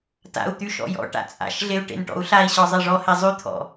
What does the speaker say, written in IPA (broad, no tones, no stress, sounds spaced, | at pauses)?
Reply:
t a̰ u̯ t̪ y ʃ ɔ̰ j ɔ̰ ʈ a̰ t͡sʼ a̰ ʃ ɮ e u̯ ʈ ḛ n ʈ ɔ̰ u̯ ɬ a i̯ ɕ ɔ zˤ e ʐ ɔ h e zˤ y t̪ʰ ɔ̰